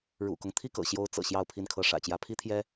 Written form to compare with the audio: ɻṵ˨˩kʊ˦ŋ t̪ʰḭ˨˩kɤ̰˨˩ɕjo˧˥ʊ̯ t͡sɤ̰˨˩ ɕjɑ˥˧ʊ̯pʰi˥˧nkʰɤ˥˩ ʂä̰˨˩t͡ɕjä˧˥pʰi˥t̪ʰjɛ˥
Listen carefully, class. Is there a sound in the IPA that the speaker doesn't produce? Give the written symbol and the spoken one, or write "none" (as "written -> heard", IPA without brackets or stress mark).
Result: ḭ˨˩ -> i˥˩